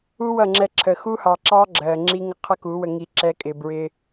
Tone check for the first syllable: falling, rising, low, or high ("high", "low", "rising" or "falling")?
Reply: high